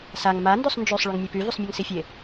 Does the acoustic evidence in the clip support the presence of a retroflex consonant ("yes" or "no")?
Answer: yes